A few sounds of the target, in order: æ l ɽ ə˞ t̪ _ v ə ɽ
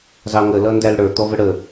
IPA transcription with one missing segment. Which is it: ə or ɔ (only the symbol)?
ɔ